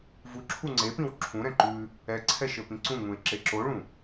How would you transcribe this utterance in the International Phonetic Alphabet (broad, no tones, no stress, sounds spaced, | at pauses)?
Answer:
v u ǁʰ u ŋ͡ǀ e p ĩ w ǁʰ ũ ɾ ɛ̃ ǃ ʉ | ɛ ǀʰ ɛ ʃ ɘ p ĩ ǀ ũ ŋ ũ ɪ̯ ǁ e ǁ o ɭ ũ